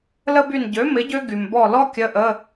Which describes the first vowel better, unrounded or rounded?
unrounded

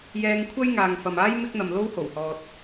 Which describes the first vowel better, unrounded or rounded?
unrounded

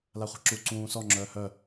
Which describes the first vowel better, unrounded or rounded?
unrounded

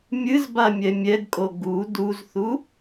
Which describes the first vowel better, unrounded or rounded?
unrounded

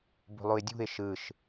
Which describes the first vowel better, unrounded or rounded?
rounded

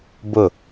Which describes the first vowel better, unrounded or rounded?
rounded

